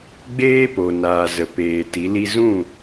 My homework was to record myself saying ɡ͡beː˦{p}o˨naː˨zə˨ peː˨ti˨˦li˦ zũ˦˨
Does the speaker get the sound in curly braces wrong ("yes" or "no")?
no